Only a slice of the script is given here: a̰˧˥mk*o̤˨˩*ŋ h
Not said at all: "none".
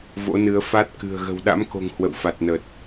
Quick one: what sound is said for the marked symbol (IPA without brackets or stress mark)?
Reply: o̤˨˩